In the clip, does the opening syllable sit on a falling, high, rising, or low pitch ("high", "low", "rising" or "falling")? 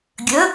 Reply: rising